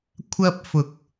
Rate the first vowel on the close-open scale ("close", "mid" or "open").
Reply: open